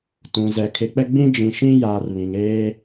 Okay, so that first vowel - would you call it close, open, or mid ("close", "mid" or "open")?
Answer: close